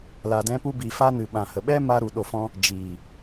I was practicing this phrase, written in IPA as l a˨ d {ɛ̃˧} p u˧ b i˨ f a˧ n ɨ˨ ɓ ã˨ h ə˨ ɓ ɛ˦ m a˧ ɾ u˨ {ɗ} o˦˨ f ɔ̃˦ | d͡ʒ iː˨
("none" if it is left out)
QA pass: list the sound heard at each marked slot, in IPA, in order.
ɛ̃˧, ɗ

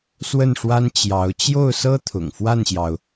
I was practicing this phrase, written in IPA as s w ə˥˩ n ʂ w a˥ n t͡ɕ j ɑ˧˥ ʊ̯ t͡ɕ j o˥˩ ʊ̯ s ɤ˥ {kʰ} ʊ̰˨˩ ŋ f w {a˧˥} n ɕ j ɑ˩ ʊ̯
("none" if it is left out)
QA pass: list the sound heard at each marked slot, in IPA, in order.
t̪ʰ, a˥˩

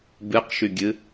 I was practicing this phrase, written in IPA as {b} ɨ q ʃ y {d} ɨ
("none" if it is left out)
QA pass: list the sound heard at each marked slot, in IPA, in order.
b, ɡʲ

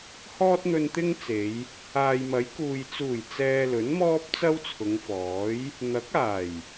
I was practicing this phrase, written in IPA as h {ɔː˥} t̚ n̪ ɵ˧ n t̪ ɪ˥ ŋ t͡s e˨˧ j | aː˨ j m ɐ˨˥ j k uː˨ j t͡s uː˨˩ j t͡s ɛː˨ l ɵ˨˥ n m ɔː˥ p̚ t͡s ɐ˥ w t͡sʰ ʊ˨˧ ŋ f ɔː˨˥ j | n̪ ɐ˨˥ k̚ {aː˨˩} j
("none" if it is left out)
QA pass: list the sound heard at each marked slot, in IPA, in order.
ɔː˥, aː˨˩

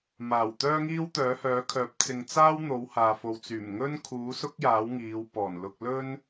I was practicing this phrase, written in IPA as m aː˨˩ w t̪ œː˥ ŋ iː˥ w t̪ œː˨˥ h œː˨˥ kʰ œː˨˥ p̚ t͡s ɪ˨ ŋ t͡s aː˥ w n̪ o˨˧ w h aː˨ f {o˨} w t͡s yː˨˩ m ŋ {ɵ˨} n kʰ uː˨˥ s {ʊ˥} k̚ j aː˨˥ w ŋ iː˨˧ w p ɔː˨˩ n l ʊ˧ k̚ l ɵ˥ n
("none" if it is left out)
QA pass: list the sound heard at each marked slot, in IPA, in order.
o˨, ɵ˥, ʊ˥

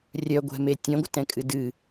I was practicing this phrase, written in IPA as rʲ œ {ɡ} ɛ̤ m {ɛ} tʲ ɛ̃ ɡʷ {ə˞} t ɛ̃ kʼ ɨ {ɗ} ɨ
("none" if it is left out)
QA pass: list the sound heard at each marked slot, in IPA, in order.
ɡʷ, e, ə, d

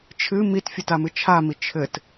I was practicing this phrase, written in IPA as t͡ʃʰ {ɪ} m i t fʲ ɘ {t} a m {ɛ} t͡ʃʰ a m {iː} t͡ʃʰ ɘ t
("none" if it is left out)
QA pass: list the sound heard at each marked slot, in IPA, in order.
ɨ, t, ɨ, i

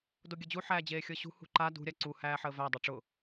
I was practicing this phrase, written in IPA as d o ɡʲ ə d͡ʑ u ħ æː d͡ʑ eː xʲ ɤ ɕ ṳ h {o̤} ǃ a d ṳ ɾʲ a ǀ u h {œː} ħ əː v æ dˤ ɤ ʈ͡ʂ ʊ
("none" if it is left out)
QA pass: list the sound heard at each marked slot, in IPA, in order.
ṳ, æː

